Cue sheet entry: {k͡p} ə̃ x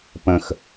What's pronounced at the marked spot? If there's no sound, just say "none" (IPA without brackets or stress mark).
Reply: p